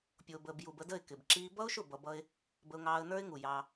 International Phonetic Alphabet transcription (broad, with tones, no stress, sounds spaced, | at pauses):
pʲ ʊː˨ b əː˨ b j u˨ b ə˧ d ə˦˨ ɪ̯ k ɪ˨ b ǁ iː˧ b ʌ˦ ʊ̯ ʃ ʊ˦˨ b ʌ˧ b ʌ˦ ɪ̯ | b ə˧ ʊ̯ ŋ ɑː˧ ə̯ n ə˞˦ ɪ̯ ŋ u˨ j ɑ˧